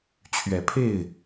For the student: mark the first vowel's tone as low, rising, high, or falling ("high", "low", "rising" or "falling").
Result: rising